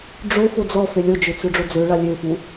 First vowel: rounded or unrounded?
rounded